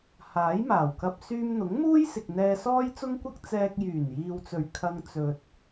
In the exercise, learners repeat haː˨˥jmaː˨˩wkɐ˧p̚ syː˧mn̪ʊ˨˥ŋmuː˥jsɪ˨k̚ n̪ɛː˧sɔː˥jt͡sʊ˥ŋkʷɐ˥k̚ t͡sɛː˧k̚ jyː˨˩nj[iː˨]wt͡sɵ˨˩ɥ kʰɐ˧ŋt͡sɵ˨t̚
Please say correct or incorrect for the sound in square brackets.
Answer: correct